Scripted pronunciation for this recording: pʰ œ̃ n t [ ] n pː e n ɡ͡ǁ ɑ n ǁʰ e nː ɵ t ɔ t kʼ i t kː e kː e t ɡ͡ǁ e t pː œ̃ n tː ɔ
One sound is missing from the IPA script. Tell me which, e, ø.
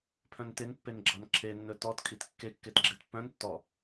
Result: e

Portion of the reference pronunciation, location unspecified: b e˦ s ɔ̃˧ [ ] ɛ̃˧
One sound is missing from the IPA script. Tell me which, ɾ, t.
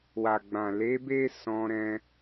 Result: ɾ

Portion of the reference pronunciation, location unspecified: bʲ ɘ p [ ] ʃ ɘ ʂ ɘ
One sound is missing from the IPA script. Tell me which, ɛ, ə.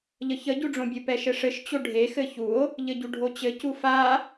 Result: ɛ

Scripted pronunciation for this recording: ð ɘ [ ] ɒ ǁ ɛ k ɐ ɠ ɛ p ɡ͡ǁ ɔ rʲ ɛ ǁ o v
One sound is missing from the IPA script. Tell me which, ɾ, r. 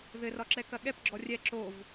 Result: r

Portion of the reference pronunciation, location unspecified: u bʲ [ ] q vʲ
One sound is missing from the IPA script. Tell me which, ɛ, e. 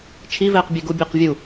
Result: e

